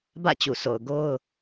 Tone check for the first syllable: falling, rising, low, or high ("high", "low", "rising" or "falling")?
falling